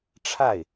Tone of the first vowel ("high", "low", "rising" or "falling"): falling